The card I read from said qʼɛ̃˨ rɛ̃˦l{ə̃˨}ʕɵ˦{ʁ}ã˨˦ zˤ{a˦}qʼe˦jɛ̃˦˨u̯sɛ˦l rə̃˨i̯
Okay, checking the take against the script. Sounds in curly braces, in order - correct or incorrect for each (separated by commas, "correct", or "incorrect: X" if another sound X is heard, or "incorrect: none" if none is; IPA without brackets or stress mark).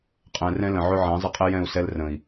correct, incorrect: ʕ, incorrect: ə˦